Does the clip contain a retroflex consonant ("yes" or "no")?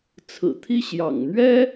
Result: no